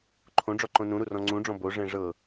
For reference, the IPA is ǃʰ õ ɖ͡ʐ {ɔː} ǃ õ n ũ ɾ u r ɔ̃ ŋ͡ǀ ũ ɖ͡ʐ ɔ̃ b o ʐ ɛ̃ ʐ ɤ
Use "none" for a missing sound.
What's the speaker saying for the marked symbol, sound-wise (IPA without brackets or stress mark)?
ɔ